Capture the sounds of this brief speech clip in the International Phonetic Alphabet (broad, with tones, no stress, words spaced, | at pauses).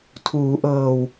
tʰuː˩˦ʔɤː˨˩w